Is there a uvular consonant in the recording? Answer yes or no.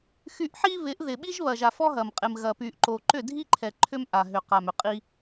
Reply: yes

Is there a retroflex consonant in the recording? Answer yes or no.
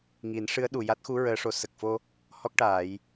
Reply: yes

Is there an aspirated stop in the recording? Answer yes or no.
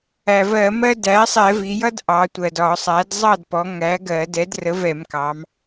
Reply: no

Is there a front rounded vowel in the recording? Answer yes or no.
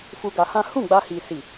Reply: no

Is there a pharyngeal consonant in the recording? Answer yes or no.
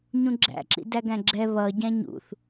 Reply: no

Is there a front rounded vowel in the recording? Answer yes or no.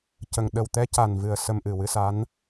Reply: no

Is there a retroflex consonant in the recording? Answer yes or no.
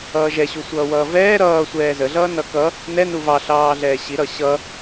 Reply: no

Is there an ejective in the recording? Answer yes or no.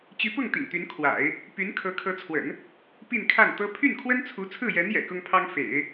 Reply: no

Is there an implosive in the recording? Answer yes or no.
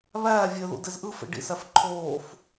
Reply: no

